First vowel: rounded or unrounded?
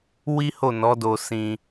unrounded